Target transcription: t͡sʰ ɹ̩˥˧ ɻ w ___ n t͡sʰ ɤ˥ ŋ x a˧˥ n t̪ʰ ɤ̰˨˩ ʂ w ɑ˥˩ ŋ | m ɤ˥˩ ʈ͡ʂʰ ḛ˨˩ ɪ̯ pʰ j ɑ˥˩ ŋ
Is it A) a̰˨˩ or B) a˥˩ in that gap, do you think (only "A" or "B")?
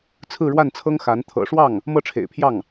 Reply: B